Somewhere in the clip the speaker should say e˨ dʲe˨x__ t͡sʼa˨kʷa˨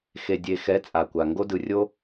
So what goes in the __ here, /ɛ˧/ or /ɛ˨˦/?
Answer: ɛ˨˦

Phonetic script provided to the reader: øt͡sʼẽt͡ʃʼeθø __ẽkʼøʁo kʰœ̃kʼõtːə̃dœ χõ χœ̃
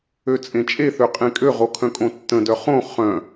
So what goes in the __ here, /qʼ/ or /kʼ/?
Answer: qʼ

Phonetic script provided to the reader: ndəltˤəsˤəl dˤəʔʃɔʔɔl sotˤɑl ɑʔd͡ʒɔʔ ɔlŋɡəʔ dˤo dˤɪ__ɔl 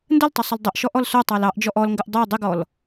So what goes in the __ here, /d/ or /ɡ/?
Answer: ɡ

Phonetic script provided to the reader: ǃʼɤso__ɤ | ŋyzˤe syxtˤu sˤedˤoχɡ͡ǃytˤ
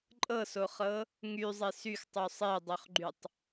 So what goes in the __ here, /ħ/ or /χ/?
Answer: χ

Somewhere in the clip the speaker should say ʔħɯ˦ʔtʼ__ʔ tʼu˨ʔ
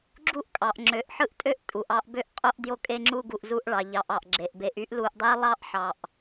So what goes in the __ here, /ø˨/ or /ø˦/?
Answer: ø˦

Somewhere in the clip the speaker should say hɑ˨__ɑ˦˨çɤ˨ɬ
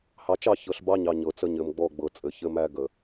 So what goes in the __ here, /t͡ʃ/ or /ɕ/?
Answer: t͡ʃ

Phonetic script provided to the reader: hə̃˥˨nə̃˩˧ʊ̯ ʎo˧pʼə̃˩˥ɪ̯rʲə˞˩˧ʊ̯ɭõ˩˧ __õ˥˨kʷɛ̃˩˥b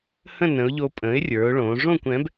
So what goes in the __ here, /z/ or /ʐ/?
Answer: ʐ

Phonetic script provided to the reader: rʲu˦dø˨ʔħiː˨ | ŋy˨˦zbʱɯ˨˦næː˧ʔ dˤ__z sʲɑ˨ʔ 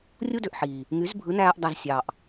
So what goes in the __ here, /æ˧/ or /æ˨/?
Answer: æ˨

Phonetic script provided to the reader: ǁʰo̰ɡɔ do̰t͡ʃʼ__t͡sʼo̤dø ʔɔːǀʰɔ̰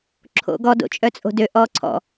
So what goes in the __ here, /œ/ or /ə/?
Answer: œ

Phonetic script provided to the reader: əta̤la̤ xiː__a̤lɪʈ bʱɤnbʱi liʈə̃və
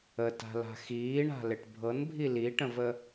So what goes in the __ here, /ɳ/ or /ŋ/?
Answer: ɳ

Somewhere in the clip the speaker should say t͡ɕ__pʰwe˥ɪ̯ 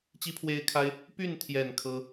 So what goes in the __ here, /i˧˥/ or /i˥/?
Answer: i˥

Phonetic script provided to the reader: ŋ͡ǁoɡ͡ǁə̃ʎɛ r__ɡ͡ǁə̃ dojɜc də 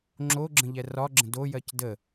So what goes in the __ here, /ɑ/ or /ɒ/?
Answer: ɒ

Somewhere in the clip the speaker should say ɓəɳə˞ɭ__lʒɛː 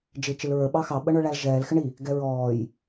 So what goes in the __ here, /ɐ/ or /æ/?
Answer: æ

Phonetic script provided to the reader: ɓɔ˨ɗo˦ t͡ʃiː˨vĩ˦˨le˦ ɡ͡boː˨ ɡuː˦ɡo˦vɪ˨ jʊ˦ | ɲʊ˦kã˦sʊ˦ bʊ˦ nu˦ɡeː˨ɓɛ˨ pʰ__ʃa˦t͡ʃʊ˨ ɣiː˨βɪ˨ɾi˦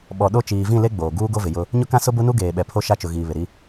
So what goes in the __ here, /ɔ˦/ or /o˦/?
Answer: o˦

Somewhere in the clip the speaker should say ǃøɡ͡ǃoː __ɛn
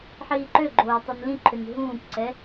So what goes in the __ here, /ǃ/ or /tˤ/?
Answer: tˤ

